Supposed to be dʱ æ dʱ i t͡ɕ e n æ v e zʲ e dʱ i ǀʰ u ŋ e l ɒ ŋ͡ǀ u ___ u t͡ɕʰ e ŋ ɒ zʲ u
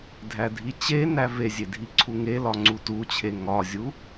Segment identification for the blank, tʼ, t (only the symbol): t